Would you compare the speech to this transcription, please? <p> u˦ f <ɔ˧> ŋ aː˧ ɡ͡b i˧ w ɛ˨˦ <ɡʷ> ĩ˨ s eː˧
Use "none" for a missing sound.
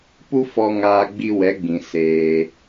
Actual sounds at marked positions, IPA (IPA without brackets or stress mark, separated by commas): p, ɔ˧, ɡ͡b